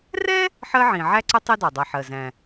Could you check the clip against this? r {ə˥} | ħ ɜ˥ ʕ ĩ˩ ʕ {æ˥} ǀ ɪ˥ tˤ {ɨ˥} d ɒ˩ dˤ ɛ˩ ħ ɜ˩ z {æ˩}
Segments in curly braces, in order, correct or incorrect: incorrect: ɛ˥, correct, incorrect: i˥, incorrect: æ̃˩

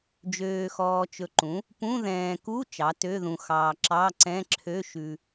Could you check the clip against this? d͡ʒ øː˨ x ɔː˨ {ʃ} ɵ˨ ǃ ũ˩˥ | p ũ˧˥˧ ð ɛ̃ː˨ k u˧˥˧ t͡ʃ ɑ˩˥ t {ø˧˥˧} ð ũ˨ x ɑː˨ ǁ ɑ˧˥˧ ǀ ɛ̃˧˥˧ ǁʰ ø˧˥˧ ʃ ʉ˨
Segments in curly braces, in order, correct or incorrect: incorrect: t͡ʃ, correct

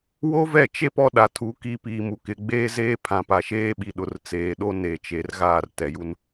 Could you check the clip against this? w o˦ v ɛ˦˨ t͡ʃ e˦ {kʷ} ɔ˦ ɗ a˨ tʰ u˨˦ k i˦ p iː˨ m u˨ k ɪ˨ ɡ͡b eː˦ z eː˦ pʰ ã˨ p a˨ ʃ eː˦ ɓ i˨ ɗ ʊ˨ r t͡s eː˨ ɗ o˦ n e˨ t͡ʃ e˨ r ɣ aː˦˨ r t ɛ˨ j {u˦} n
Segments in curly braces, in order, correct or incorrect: incorrect: p, correct

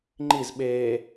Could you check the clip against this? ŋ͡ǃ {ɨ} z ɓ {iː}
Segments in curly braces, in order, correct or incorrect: incorrect: i, incorrect: eː

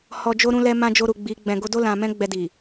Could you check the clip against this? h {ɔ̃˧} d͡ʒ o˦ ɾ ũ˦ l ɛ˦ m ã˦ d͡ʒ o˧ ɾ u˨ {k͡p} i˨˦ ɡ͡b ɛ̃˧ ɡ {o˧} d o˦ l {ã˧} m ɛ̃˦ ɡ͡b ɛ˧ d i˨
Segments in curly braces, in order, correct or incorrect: incorrect: ɔ˧, incorrect: ɡ͡b, correct, correct

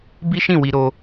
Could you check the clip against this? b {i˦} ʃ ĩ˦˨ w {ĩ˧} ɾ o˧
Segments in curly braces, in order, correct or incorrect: correct, incorrect: i˧

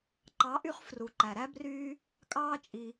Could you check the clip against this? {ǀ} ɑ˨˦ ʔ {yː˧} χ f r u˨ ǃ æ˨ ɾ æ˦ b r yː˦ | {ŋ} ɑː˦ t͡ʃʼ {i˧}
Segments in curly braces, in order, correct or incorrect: incorrect: ǃ, incorrect: y˧, incorrect: kʼ, correct

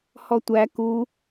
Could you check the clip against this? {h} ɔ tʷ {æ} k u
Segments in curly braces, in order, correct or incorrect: correct, correct

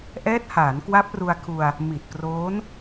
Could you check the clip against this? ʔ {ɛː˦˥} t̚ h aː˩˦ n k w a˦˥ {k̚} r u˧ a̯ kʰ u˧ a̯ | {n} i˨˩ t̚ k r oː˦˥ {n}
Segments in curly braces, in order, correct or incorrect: correct, incorrect: p̚, incorrect: m, correct

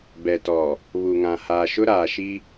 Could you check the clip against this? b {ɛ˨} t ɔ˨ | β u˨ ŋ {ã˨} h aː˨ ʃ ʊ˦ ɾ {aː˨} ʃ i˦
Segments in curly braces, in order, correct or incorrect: correct, correct, correct

